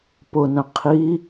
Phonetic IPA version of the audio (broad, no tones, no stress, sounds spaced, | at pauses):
p ʊ n ə̃ qʰ i